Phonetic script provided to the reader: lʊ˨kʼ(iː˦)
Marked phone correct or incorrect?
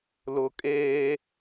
incorrect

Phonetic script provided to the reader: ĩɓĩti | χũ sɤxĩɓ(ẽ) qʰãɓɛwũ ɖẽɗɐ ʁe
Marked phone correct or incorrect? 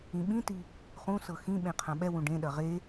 correct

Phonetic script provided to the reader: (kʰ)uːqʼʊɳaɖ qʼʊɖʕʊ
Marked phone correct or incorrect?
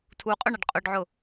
incorrect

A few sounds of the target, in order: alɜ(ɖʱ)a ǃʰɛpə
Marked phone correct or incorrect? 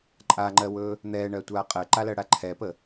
incorrect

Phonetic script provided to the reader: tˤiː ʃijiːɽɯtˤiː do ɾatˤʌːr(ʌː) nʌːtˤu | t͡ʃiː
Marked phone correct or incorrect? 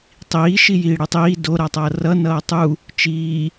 incorrect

